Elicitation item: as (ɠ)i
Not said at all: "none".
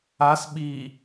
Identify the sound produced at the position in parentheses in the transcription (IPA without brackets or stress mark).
ɓ